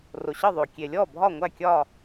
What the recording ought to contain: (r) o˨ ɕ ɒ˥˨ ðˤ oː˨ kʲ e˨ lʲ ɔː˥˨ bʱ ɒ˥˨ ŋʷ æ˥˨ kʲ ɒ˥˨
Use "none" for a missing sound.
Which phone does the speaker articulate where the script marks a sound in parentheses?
r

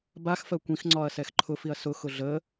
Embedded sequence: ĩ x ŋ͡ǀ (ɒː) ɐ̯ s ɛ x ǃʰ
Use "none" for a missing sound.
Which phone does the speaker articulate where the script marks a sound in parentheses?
ɒː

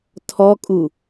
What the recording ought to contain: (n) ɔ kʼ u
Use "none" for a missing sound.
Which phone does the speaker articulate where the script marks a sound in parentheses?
tʰ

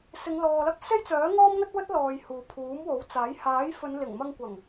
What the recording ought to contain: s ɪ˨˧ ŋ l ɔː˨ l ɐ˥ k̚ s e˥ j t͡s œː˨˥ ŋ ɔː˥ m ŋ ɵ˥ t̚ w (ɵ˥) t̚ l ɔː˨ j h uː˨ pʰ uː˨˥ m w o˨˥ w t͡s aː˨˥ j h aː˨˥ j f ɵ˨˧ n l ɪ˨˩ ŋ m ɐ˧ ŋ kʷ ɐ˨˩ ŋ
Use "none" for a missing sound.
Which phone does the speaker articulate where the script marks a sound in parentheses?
ɵ˥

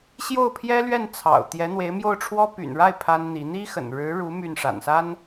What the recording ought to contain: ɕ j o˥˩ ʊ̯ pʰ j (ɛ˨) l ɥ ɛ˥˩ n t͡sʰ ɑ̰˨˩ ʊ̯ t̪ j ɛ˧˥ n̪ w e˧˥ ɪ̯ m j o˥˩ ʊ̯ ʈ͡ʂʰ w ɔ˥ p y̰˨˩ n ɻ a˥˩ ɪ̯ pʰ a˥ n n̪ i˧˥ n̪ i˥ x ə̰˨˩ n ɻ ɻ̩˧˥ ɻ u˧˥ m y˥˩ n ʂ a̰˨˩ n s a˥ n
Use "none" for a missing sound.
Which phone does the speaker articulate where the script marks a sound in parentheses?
ɛ˥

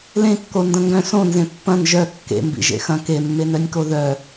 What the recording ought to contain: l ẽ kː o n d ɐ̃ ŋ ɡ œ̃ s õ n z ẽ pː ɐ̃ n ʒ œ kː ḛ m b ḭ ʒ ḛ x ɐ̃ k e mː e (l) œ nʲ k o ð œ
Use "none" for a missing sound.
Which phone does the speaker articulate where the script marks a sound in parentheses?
n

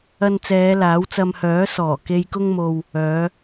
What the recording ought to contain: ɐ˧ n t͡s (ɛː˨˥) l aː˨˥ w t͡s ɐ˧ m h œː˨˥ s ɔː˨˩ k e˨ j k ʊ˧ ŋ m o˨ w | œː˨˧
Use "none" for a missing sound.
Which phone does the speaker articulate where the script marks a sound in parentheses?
ɛː˨˧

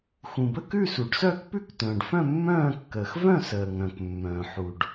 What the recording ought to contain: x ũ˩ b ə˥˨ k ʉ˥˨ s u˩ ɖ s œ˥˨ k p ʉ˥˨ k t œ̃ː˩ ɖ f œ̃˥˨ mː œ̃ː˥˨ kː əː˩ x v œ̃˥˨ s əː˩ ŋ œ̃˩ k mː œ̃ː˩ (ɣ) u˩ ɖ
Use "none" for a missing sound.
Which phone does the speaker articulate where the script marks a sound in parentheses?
ħ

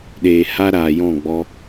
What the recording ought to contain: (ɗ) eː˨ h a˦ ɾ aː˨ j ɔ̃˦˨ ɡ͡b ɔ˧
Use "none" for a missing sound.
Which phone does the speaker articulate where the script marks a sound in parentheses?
ɗ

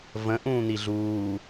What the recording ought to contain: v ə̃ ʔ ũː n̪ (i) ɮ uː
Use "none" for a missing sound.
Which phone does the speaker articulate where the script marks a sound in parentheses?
i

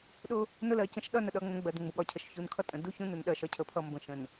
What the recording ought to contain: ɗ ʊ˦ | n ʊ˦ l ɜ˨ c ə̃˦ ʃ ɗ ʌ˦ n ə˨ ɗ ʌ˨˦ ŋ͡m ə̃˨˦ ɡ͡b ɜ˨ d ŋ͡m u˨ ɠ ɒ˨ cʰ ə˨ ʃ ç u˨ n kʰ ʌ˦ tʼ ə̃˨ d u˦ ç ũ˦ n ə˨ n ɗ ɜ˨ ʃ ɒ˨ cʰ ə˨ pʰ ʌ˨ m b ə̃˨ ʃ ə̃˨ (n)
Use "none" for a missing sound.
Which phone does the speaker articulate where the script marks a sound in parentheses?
n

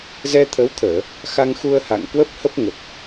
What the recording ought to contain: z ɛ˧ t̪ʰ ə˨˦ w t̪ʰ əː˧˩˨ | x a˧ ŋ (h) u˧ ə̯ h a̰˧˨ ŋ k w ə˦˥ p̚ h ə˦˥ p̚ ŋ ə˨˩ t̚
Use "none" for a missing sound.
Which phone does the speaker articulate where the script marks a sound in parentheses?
x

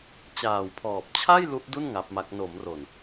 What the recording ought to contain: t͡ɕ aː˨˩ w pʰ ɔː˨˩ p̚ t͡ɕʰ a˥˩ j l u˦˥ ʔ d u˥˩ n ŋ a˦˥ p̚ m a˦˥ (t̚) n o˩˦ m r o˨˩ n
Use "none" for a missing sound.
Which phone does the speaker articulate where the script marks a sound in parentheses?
k̚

